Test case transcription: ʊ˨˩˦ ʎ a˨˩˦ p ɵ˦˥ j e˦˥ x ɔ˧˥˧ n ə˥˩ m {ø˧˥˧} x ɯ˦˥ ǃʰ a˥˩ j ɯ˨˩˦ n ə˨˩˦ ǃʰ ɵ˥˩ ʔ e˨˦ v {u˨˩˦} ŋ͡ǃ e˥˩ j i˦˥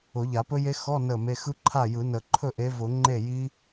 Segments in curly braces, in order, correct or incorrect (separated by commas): incorrect, incorrect